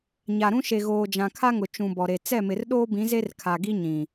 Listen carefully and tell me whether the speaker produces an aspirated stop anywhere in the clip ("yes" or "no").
yes